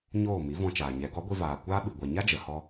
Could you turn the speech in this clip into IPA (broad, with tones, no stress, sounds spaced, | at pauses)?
ɲ oː˦˨ m i˨˦ v ɔ̃˧ t͡ʃ aː˨ ɲ ɛ˨˦ ɡ ɔ˨˦ ɡʷ i˧ v aː˨ kʷ aː˦ ɓ ɨ˨ ɡʷ ɛ˨ ɲ a˦ d͡ʒ ə˨ h ɔ˦